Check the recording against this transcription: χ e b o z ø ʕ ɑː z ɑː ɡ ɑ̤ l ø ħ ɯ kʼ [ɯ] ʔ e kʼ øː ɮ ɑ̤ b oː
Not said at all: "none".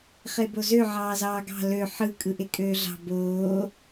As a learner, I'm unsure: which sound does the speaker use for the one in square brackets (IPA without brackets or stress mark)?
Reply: ɯ